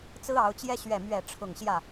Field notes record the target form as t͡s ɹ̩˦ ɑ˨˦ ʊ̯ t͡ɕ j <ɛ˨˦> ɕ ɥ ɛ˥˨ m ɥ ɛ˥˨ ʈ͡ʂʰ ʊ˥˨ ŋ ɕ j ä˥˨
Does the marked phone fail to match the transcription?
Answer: yes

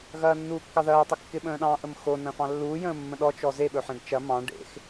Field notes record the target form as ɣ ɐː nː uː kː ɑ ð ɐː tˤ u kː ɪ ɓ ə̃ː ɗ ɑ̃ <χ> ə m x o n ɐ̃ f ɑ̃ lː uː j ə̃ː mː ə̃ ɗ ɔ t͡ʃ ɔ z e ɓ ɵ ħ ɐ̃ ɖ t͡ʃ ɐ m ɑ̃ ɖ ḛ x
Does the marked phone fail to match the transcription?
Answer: yes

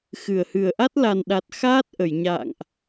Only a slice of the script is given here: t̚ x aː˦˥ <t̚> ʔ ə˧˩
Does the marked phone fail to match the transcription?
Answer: no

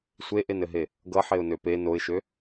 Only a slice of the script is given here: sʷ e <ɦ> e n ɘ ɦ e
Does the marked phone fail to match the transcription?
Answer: yes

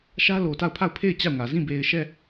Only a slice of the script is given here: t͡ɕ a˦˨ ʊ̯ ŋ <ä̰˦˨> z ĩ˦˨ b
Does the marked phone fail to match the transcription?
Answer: yes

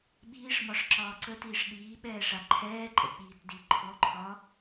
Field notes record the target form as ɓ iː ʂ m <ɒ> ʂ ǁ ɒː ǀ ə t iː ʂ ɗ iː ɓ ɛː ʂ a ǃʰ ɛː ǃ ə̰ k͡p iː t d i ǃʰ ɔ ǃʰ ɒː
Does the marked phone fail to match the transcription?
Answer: no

